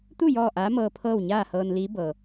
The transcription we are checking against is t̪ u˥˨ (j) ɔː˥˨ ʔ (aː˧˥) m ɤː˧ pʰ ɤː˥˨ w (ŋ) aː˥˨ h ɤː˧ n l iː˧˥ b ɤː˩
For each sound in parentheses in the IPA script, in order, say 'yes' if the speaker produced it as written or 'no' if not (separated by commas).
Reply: yes, yes, no